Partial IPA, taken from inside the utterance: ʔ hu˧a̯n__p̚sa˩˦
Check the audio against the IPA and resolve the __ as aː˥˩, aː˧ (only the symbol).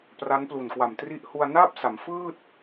aː˥˩